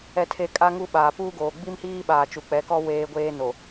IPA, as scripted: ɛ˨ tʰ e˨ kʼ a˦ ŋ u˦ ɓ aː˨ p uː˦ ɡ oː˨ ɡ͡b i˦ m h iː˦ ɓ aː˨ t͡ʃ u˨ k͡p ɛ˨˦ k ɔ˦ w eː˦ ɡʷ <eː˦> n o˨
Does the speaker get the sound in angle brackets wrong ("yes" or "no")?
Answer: no